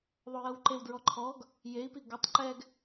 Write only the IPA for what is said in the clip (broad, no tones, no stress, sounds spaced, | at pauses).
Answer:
ðˤ o j ɤ w ǃ e w d ɹ ɔ ǃʰ ɔ ɡ | j e i̯ p i ɡ o tˤ ǃ ɛ ɡ